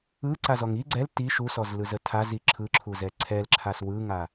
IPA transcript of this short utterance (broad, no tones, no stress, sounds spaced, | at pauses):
ɯ ǀ a z ɔ ŋ i ɡ͡ǀ ɛ l t i ʃ u s ɔ z l ɯ z ə tʰ a z i ǁʰ ɯ ǁʰ u z ɛ ǀʰ ɛ l ǁʰ a s w ɯ ŋ a